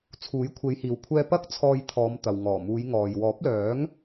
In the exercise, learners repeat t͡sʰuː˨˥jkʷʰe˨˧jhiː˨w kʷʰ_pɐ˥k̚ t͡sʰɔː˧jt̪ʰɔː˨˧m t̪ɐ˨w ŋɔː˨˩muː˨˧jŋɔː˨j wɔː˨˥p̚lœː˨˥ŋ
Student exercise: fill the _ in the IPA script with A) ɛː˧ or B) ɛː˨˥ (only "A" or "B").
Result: A